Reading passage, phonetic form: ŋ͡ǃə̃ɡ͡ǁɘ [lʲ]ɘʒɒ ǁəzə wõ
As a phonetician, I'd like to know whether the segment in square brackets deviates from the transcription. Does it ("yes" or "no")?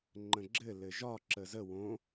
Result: yes